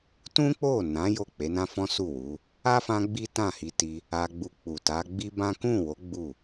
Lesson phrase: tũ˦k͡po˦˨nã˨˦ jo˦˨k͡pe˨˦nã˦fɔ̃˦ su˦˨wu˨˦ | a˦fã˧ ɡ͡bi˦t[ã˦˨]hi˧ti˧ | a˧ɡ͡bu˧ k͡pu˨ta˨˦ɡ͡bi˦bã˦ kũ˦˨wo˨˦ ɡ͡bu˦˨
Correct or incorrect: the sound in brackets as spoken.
correct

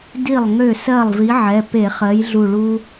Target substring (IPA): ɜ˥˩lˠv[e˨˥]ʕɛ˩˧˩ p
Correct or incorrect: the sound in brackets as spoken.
incorrect: i˨˥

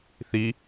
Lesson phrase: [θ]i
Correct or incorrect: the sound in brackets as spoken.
correct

